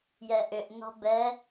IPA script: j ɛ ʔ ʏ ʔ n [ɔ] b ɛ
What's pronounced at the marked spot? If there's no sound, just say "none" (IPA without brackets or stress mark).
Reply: ɔ̤